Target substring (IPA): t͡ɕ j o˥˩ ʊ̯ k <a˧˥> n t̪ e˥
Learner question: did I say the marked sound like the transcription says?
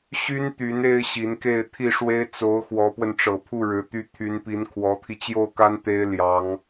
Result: no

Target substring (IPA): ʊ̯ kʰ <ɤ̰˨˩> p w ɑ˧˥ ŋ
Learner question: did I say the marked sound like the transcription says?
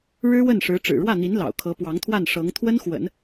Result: no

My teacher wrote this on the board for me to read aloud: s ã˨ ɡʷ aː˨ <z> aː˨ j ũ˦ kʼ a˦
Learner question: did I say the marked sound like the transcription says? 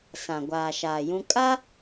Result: no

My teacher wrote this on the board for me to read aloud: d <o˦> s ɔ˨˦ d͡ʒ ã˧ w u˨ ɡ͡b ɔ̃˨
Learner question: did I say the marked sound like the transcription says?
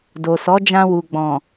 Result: no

